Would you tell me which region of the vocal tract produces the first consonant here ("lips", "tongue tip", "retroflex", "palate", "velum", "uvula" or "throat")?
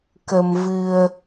velum